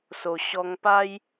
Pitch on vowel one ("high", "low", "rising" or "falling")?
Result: low